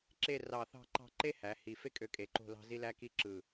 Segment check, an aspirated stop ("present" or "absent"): absent